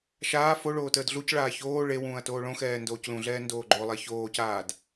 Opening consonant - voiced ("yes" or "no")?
no